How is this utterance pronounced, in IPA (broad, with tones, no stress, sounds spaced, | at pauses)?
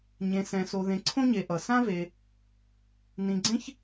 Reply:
ɲ ẽ˨ s ɛ̃˨ s o˨ ð ẽ˨ ǀʰ õ˦ ɲ e˨ ʔ ʌ˩ s ã˥ v e˨ | n ĩ˨ ɡ͡ǀ ẽ˦ ç